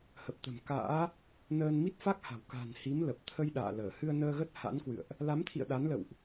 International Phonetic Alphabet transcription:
hə˨˩p̚t̪ə̤˨˩m ka̰ː˧˥ | nəː˧n mi˦˥t̚fa˦˥k̚ha̤˨˩w ka̤˨˩n hi˨˦mlə˨˩p̚t̪ʰə˧j ɗa̰ː˧˨ləː˧˩ hɨ˧ə̯nəː˧ɣə˦˥t̚ ha̰˧˥n kwɨ̰˧˨ə̯ʔ | la˨˦mt̪ʰḭ˧˨ə̯ ɗa˨˦nlə̰˧˨wʔ

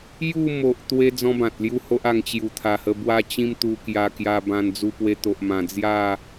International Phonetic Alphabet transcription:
ju˥˧mo˨ʔ t̪we˦ d͡zɔ̃˦bã˨t̚lju˥˧ho˦ʔ a˧ŋt͡ɕju˨˩ t̪ʰa˨˩hə˧ bwa˥˧t͡ɕĩ˦m t̪u˧kja˧kja˧ bã˧nd͡zu˧ pwe˧t̪o˨ʔmã˨˩ d͡zja˥˧

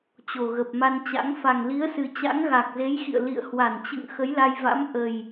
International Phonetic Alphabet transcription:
t͡ɕo˨˩ɣə˨˩p̚ma˧nt͡ɕa̰˧˥ŋ fa˨˩ŋli˨˦ə̯sɨ˨˩ t͡ɕa̰˧˥ŋɣa˨˩k̚ze˨˦jxḭ˧˨ə̯ lḭ˧˨ə̯hwa˧˩nt͡ɕɨ̰˧˨ŋ xə˨˦jla˧jva̰˧˥m ʔə˨˩j

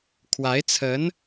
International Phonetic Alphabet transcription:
kʰwa˧˥ɪ̯t͡sʰə˧˥n

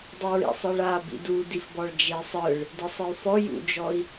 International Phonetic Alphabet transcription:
dˤɯɹḭsˤeɭa bḭdu difbɔɭd͡ʒesˤɯɭ | disˤɯu̯fɔ jṵd͡ʒɔi̯

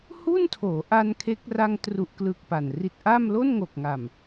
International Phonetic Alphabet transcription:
hu˥˩ntʰoː˩˦ ʔa˧n kʰe˦˥k̚ra˧ŋ tru˨˩ʔklɯ˨˩k̚ pa˨˩nri˦˥t̚ ʔa˥˩m lo˥˩nŋo˨˩k̚ŋa˨˩m

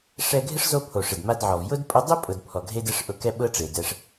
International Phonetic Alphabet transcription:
ʂɛ˦ɡʱɪ˥ʂzo˦ pʰo˨ʂɪ˨d ma˦dʕɔ˨v jʊ˥dpʼʊ˦ dˤʊ˥pʼʊ˨d pʰɔ˨ɡʱe˥dɛ˥ʂʔʊ˦ kɛ˦ɓʊ˦ə̯ ʈ͡ʂe˩dɛ˨ʂ

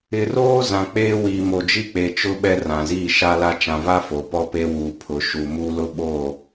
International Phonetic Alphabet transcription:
ɪ˨roː˦ zã˨k͡peː˦wiː˨ mo˨d͡ʒi˦k͡pe˨ t͡ʃʊ˦ɓɛ˦ rã˨ziː˦˨ʃa˦la˦ t͡ʃã˨va˦ fo˨ pɔ˦pe˦wuː˨pʰʊ˨˦ ʃu˨muː˦lʊ˦ɓo˦˨

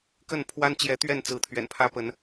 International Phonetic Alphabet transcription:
kə˥˨npʰwa˦n t͡ɕjɛ˨˦t̪ɥɛ˥˨n t͡sɹ̩˨˦t̪ʰɥɛ̰˨˩npʰä˦pə˨˦n

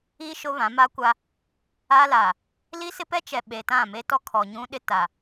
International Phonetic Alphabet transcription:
i˦ ʃʊ˦βã˨˦ma˦kʷa˦ | a˦la˨ | li˦sɪ˦pɛ˦t͡ʃɛ˨ ɓe˨tã˦˨me˦tɔ˦ kʰɔ˨ɲũ˦ ɗɪ˦ta˨

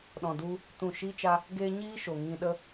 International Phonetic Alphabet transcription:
ɗɔ̃˨du˧ | tũ˦˨ ʃi˦t͡ʃa˦ | ɡe˦ ɲiː˦ʃo˨ ŋĩ˧ɗə˦

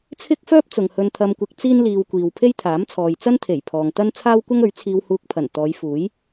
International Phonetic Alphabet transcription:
t͡sʰɪ˥k̚fœː˥p̚t͡sʊ˨ŋ hɵ˧nt̪ʰɐ˧mkʷɪ˧k̚ t͡siː˥n liː˧wkʷiː˨w pʰe˥jt̪ʰaː˨˥mt͡sʰɔː˨j t͡sɐ˥nt̪ʰe˨˩j pʰɔː˨ŋt̪ɐ˥n t͡sʰaː˥wkʷɐ˥ŋɵ˨˥ɥ t͡sʰiː˧whuː˧k̚pʰɐ˨˩n t̪ɔː˨˧jfuː˨˥j

